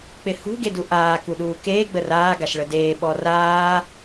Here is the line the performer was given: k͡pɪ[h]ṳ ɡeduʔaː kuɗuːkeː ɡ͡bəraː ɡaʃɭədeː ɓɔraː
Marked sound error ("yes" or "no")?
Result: no